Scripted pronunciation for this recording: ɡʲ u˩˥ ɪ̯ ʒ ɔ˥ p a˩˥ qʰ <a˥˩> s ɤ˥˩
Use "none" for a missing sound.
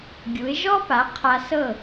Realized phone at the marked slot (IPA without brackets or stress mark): a˧